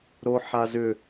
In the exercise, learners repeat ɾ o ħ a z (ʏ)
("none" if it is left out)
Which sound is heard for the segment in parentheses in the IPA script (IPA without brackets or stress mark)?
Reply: ʏ